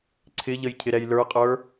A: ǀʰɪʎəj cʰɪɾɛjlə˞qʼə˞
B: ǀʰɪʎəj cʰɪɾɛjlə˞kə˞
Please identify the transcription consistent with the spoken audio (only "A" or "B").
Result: A